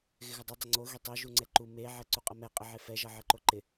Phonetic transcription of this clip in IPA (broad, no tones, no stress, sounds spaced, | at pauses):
ɣ ɪ ɣ ə dˤ ɘ dˤ ɪ ŋ͡ǀ o ɣ i tˤ o ʒ u ŋ͡ǀ ɛ ǃ u m e ʕ ɛ ǀ u qʼ ʌ m ɛ qʼ ɪ ʕ e f ɛ ʒ ʌ ʕ ɘ ǃ o ǃ ɪ